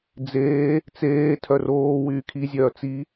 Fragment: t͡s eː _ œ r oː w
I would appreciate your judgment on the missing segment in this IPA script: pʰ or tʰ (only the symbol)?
tʰ